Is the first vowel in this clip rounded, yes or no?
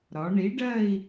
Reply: yes